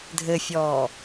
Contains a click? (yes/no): no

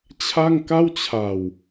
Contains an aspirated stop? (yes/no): yes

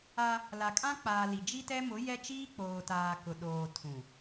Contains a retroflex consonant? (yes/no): no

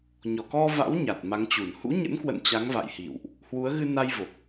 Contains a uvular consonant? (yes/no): no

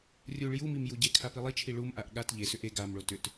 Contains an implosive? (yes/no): yes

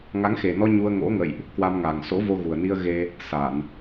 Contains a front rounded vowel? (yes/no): no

